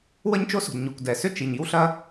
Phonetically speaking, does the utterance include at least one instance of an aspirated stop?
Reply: no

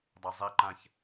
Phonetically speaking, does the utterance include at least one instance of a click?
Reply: yes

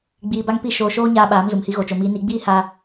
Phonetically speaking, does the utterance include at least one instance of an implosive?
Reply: yes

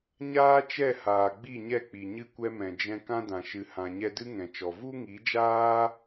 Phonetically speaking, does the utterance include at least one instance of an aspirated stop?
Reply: no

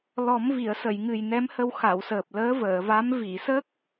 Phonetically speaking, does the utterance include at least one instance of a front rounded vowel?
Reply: no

